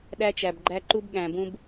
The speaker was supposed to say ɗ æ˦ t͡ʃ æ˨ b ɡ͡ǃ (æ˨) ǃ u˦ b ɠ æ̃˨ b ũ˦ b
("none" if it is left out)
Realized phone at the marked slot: æ˦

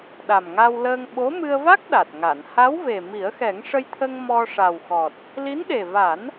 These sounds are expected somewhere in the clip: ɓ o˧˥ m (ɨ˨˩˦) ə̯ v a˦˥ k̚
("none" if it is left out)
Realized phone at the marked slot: ɨ˧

